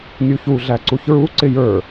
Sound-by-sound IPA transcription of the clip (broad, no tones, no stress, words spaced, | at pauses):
nʲuçu ɮæǀuçɹu ǀɪjə˞